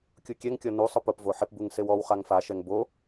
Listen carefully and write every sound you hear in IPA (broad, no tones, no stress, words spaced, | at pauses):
kʲukʲɛŋkʲɔ nusˤʊ pʊp voħɪpbuŋ sewɔwχaŋ faʃɛŋ bo